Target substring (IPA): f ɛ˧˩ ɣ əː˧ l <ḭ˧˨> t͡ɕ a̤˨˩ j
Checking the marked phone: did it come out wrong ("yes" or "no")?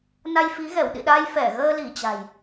yes